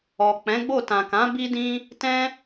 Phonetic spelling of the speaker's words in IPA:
ɔ˨ k͡p ɛ̃˨˦ ɡ͡b o˦˨ t ã˨ k ã˨˦ b i˦ d ĩ˦ | t ɛ̃˦

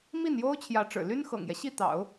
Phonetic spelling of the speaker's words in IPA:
m i˥˩ n j o˥ ʊ̯ t͡ɕʰ j ä˧˥ ʈ͡ʂ ɻ̩˨˩ l y˥ n x ɤ̰˨˩ ŋ j ɛ˦ ɕ i˥˩ t̪ ɑ̰˨˩˦ ʊ̯

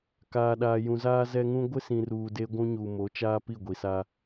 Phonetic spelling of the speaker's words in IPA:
k aː˨ ɗ aː˨ j ũ˨ z aː˦ z ɛ˦ ŋ ũ˦ ɡʷ ɪ˦ s ĩ˨ r uː˨ d e˦ ɡʷ ũ˦ ɲ u˨ m o˨˦ t͡ʃ aː˦ p i˦˨ ɡʷ i˨ s aː˦

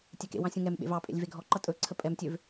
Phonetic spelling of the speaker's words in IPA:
tʲ ɛ k ḛ w ɑ̃ sʲ ũ ŋ ɛ m ɓ ḛ v ɑ pʼ ḛ lʲ v e ɡʱ ɔ ǃ ʌ tʼ ɵ ǀʰ ə pʼ ɛ m tʲ ø v

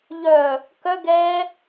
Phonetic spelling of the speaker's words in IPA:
ʎ œ | k œ ɡ ɛ

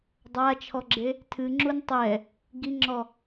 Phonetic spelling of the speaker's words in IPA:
dˤ a t͡ʃʰ ɔ ɡ͡ǁ e | tʰ ɨ ŋ͡ǁ u n tˤ ɛ | ɡ i ŋ͡ǁ ɔ

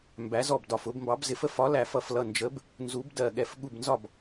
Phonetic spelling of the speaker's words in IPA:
m b æ˨˥ z ɔ˥˩ b d ɒ˧˩ f ʊ˨˥ b m b ɑ˨˥ b z ɪ˨˥ f ə˨˥ f ɒ˨˥ l æ˧˩ f ʌ˧˩ f l ʌ˧˩ n d͡ʒ ə˨˥ b | n z u˨˥ b d ɜ˧˩ ɠ ɛ˧˩ f ɠ u˥˩ b n z ɒ˥˩ b

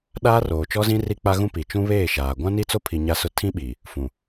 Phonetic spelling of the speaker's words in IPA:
ɗ aː˦ r oː˨ t͡ʃ ɔ˦ z ĩ˦ r i˦ k͡p a˦ ɣ ũ˦ p i˨ t͡ʃ ũ˦ β eː˦˨ ʃ aː˨ ɡʷ ã˦ n i˦ t͡s o˦ pʰ i˨ ɲ a˦ s ʊ˦ tʰ ĩ˦ ɓ i˨ | f ũ˨

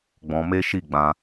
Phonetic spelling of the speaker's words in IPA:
ɡ͡b ɔ̃˧ m e˦ ʃ i˦˨ ɡ͡b ã˧

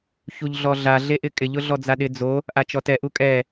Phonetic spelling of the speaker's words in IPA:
ç u ʎ ɮ ɔ ɮ a ɮ e ʔ ɪ kʼ ɪ ʎ ʊ ɮ ɔ d͡z a ɗ ɪ d͡z o | ʔ a t͡ʃ ɔ t ɛ ʔ u kʼ ɛ

